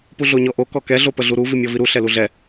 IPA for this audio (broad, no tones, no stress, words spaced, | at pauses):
puɮoɲɔʔo kɔkɛ ɮopəɮuɾu vimʲɔviɾu ɬɛluɮɛ